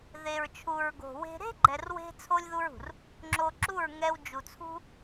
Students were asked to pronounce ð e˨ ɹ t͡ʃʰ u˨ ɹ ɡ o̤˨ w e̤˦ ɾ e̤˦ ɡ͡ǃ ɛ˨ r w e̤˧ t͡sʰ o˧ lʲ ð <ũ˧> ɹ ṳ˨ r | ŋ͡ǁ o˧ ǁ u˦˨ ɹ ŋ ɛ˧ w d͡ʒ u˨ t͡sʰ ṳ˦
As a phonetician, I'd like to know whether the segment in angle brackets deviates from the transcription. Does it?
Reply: yes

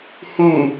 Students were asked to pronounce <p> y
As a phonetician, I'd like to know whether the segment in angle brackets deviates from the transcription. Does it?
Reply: yes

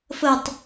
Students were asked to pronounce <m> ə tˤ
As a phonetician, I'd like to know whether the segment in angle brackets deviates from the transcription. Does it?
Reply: yes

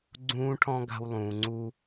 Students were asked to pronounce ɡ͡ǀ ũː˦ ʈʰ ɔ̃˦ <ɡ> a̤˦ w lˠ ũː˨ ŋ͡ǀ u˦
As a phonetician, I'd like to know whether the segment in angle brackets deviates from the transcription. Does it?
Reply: no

